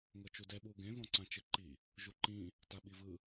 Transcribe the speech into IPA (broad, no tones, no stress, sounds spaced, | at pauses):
ŋ ɤ t͡ʃ u d ɛ ɓ u ɡ ẽ ð ɔ̃ ǀ ã t͡ʃ ɯ ǃ i | ʒ u ǃ ĩ | t a ɓ i v ɯ